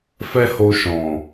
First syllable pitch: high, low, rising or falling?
high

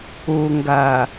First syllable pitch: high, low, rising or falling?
low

